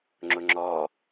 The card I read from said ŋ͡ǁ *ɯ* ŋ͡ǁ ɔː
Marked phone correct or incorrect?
incorrect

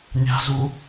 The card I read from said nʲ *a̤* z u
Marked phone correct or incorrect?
correct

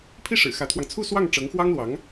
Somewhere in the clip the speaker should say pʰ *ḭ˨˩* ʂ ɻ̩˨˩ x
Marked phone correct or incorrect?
incorrect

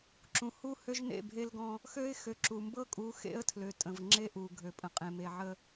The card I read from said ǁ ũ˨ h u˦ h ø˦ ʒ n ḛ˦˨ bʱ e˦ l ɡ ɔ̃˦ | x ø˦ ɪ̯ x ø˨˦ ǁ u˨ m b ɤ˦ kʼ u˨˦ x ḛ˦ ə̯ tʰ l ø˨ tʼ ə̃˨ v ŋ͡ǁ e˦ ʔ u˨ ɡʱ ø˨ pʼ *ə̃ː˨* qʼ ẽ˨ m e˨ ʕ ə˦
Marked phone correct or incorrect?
incorrect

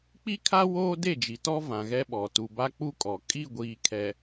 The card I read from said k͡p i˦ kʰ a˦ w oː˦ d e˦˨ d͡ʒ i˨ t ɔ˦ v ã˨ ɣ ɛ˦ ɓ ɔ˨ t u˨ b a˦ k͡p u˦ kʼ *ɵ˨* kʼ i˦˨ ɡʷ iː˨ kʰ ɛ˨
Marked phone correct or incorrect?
incorrect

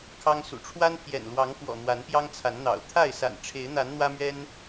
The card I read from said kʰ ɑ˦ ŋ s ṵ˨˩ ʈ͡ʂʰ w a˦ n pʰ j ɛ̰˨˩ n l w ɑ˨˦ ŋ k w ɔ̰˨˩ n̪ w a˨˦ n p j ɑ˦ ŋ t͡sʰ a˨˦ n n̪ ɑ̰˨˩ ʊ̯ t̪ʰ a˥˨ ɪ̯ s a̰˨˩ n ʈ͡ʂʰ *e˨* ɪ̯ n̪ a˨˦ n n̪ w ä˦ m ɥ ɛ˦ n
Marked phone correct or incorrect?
incorrect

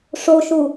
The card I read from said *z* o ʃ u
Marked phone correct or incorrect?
incorrect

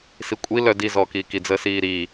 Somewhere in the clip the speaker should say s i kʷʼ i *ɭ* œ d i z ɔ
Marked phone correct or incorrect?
incorrect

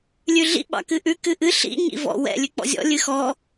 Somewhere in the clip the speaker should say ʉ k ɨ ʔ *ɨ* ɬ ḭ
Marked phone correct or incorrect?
correct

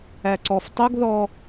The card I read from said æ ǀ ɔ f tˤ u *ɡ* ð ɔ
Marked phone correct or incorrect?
correct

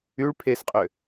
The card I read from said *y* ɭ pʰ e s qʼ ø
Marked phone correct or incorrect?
correct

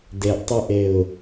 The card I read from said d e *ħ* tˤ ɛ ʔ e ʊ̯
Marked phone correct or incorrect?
incorrect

